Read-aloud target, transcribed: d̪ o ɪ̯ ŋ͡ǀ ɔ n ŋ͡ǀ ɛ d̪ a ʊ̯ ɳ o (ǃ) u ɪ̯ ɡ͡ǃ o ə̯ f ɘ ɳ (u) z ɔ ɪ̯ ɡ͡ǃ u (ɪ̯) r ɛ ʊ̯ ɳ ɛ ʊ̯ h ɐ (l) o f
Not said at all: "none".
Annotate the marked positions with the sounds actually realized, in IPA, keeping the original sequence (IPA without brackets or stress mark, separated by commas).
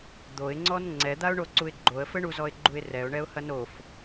ǀ, u, ɪ̯, n